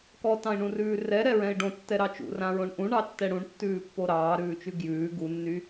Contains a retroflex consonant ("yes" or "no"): yes